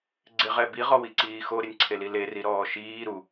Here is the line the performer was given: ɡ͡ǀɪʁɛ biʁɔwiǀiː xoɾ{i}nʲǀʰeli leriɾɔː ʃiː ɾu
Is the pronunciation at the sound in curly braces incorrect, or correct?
incorrect